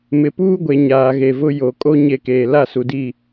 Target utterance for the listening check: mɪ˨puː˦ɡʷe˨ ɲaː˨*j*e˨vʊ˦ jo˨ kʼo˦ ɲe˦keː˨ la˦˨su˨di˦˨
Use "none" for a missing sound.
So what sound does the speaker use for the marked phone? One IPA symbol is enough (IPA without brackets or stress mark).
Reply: ɣ